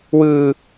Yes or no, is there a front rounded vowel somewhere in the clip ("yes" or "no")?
no